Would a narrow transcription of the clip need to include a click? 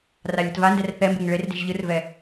no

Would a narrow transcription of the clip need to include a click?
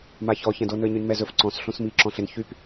yes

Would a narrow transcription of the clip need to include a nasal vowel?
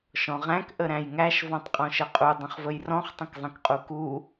yes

